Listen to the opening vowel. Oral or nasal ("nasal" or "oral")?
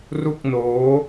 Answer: oral